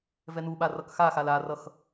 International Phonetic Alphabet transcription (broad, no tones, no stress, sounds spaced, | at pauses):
v ɛ n u ɓ a r ʌ k x a x a l a r ʌ x